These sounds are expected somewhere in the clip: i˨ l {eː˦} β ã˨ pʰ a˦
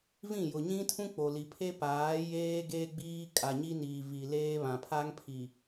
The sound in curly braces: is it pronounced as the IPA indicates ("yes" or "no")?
yes